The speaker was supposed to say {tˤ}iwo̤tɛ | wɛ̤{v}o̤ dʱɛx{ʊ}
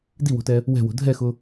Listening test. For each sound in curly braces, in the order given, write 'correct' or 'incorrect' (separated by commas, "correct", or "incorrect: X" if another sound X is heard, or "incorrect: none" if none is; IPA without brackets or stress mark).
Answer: incorrect: d, incorrect: w, correct